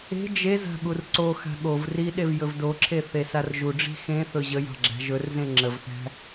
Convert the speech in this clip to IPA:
e̤ d͡ʒ e z a̤ ɠ u r ǀ o x a̤ ɠ o v r i ɗ e v j ɵ v d o ǁʰ e θ e s a r ʒ u ɖ͡ʐ i̤ x ẽ θ ɵ ʑ ə j ɑ̤ ɡ͡ǁ æ̤ ʒ ɵ r z ẽ ŋ͡ǁ ə v θ æ̤

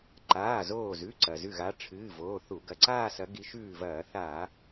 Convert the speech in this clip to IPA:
ǃ aː˩˧˩ z oː˧˩ z ʉ˩˧˩ ǀ ɐ˩ z ʉ˧˩ ɣ a˨˦ ʈ͡ʂʰ ɨː˩˧˩ v oː˩˧˩ θ u˧˩˧ ɡ ɐ˩˧˩ ǀ aː˥˧ s ɐ˨˦ ɡ i˨˦ ʃ ʉː˧˩ v ɐː˧˩˧ θ a˧˩˧

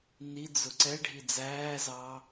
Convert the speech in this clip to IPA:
n i d͡z ʊ ǀ ɛ ɖʱ i d͡z æː z ɑ

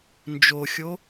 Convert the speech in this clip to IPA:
n d͡ʒ o xʲ o

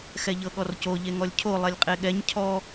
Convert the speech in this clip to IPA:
x ɛ ʎ ɤ ɠ ɔ r c o ʎ e ŋ ɔ lʲ cʰ o lˠ ɛ lʲ qʼ e ɠ ɛ ɲ cʰ ɔ

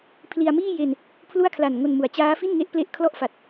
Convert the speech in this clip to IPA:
pʰ l i˧ a̯ m iː˥˩ j e˧ n | pʰ l u˥˩ a̯ kʰ l a˨˩ n ŋ o˧ n m u˩˦ a̯ t͡ɕ aː˦˥ f i˥˩ n ŋ e˦˥ ʔ p l e˦˥ ʔ kʰ l ɔ˥˩ ʔ f a˨˩ t̚

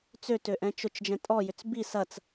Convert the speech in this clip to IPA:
t͡s ø t ø ʔ ɛ̃ t͡ʃ ʊ t͡ʃ d͡ʒ ɛ̃ tʼ ɔ j ʏ t͡s b i s ɐ t͡s

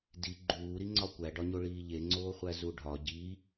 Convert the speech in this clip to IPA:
d i ɡ͡ǃ uː ɾ i ŋ͡ǀ ɒ kʷ æ ɖ ɒ ɲ o ɭ iː ʎ e ŋ͡ǀ oː χʷ æ z u ɖʱ ɒ ɟ i

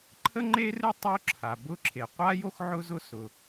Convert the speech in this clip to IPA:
ǃʰ ə˥ ŋ͡ǃ e˥ r ɨ˥ tˤ o˥ ǁʰ a˩ b ʊ˥ ǁʰ e˩ qʷ a˥ j o˥ x ʕ ʊ˥ z ʊ˥ s ʊ˩

